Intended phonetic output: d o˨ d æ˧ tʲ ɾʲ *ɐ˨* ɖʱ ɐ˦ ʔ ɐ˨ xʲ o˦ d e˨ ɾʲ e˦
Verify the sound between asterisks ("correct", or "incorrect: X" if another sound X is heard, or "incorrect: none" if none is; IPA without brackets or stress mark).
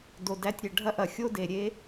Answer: correct